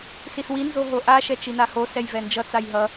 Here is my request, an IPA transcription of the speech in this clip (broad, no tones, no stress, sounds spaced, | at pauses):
s i s w i n z o ɦ o ʔ a ʃ ɛ t͡ʃ i n a h o s ɛ j v ɛ n d͡ʒ ʌ t͡s a j ɦ ʌ